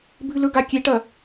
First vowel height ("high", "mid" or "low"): high